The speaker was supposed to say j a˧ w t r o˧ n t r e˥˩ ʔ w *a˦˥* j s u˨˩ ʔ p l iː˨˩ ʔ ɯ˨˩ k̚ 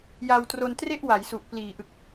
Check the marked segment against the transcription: incorrect: a˩˦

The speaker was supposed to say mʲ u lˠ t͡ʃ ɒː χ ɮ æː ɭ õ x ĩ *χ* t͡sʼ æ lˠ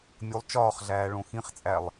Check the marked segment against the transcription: correct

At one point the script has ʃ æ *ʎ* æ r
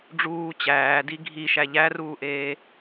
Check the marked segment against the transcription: correct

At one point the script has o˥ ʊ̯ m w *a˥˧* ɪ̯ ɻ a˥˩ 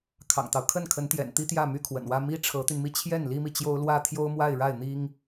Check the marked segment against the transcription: correct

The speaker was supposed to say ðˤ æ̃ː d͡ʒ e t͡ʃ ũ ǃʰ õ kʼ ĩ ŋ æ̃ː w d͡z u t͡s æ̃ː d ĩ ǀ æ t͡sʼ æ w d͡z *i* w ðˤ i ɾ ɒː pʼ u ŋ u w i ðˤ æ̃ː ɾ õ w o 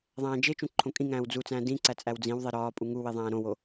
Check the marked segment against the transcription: incorrect: ĩ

